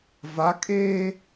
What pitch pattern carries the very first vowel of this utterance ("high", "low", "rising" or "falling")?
rising